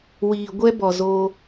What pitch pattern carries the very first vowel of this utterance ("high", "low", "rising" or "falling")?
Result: low